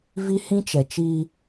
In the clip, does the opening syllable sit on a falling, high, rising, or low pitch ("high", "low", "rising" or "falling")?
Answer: high